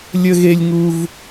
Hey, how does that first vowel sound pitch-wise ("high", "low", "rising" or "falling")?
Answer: high